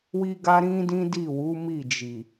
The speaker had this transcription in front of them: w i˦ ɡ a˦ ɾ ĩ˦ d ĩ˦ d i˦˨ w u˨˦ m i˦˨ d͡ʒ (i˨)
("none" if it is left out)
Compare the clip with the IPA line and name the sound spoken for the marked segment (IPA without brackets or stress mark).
i˨